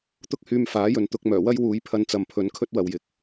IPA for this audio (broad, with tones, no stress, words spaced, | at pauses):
t̪ʊ˥k̚hyː˧m faː˨˥jɵ˨nt̪ʊ˧k̚mœː˨˩ wɐ˥j wuː˨˥j pʰɐ˧nt͡sɐ˨mpʰɵ˨˥n kʰɵ˥t̚ wɐ˨wjɪ˨˥k̚